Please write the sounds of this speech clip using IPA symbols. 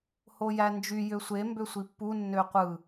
h o j æ n d͡ʒ y j ø sʷ e m b ø sʷ i pː u nː ø qʷ ɯ

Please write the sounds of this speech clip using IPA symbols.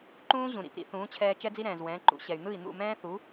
ǃ ũː˥ ʑ ũ˩ ɾ ḭ˥˩ p ɾ ḭ˧ θ ũː˩˥ t͡ɕʰ ɛː˧ t͡ʃ ɛ˥ d͡z i˥ ɾ ɛ̃ː˩ z w ɛ̃ː˩˥ ǃ ṵ˧ ɕ ɛ˩ y̯ n̪ ɯ˥˩ i̯ n̪ ṵ˥˩ m ɛ̃ː˥ θ u˩˥

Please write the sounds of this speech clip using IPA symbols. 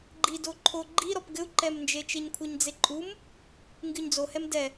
ɡ͡ǃ i d o ǃʰ o ɡ͡ǃ i ɾ ɔ p ɡ ɘ u̯ ǃ ɛ m n d͡ʒ e t͡ʃ e ɲ kʷʰ ɘ ɲ d͡z e ǃʼ u m | ŋ ɡ ɨ ɲ d͡z o h ɛ m d ɛ

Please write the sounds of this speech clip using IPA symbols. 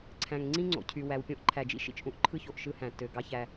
ǀʰ æ̃˨ ŋ ŋ͡ǀ ĩ˦ ŋ͡ǀ o̰˨ cʰ y˨ w æ˨ w pʲ õ˦ ʔ ǃʰ æ˨ d͡ʒ ḭ˦ ʃ ḭ˨ t͡ʃ ʔ ũ˦ ʔ ǃʰ ɯ˦ ç o˨ ʔ ʃ ɯ˦ h æ̃˨ tː ø˨ ɡ ɑ˦ ç æ˦

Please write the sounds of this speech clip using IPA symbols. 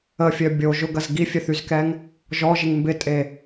ə fʲ œ bʲ o ʒ ʊ ɡ ɐ z ɡ i fʲ ɛ θ y z k ɛ ŋ | ʒ ɔ ʒ ɪ ŋ m b ɪ tʼ e

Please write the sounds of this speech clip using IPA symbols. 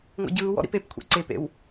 ŋ ɔ̰ ɟ ɯː w ɔ̰ ɾ ḭ p e p kʷʰ ḛ ǀ e p ḛ w

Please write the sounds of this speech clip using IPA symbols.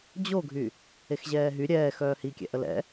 d͡ʑ o ɡʱ y | e x ʑ ɛː ɦ y ɾʲ ɛː x œː h i kʲ ɛ̰ ʔ ə l ɛ̰

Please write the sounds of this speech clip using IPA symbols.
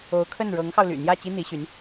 o˧˥ ʊ̯ kʰ ə˥˩ n ɻ ɤ˧˥ ŋ x ɑ˧ ʊ̯ l y̰˨˩ n̪ j ä˥˩ t͡ɕ i˥ n̪ i˧˥ ɕ y˧˥ n

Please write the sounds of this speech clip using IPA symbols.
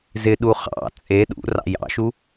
z ɪ ɗ u χ ɑ̰ t͡sʼ e ɗ ṵ r ɑ̰ j ɑ̰ ʃ u

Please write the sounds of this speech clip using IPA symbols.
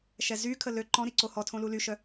ʃ ɛ z y kʰ ə l ø ǃ ɔ̃ ɾ i ǀ o h ɔ tʰ õ l u l y ʃ œ

